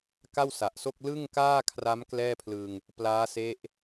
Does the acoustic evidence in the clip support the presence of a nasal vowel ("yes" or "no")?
no